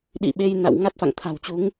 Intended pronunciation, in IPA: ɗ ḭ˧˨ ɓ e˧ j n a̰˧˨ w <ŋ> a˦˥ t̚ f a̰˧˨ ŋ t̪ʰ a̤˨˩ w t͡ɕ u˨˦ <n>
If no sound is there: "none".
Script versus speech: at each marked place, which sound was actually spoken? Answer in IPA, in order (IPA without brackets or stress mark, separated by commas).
ŋ, ŋ